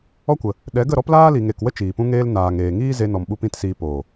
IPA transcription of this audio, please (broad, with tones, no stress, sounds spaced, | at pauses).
ɔ˦ kʷ ə˨ | ɗ ɛ˨˦ ɡ ə˦˨ ɾ ɔ˦ p l aː˦ l i˨ ŋ e˨ k w ə˦ t͡ʃ iː˨ p ũ˦ ŋ eː˦ l n aː˨ ŋ eː˨ ŋ iː˦ z e˧ n ɔ˨ m ɓ u˧ p ĩ˦ t s iː˧ p oː˨